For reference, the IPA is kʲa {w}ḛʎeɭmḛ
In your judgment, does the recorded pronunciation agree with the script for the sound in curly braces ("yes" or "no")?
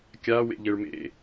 yes